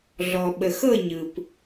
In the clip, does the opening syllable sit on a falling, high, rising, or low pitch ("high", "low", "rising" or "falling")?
low